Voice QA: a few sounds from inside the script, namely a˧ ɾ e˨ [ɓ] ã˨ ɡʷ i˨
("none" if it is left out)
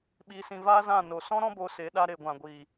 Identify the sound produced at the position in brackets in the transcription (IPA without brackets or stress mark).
ɡʷ